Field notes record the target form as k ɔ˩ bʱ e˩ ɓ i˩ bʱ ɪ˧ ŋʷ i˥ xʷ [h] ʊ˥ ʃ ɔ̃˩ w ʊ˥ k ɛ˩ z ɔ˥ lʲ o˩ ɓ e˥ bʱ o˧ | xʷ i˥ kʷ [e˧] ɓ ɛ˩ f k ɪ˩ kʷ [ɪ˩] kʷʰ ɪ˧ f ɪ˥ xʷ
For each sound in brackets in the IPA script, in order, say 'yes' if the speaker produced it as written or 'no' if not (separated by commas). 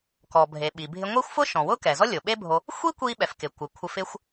no, no, yes